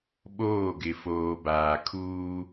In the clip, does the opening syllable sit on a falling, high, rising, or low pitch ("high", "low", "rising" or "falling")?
falling